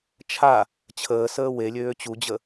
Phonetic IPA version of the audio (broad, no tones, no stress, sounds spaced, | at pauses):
t͡ʃʰ a | t͡ɕʰ əː s əː w e lʲ øː t͡ɕ u d͡ʑ ə